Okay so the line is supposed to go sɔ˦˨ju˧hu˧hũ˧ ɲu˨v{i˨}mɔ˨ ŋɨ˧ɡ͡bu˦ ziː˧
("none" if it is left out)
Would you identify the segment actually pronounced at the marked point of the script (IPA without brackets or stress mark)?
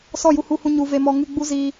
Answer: e˨